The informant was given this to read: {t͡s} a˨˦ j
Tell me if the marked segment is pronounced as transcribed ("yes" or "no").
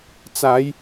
yes